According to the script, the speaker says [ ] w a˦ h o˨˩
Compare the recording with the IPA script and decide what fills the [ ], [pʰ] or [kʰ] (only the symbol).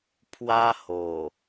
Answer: pʰ